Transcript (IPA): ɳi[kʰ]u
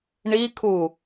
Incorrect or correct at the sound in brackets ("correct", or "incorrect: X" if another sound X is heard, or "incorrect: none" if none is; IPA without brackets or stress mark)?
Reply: correct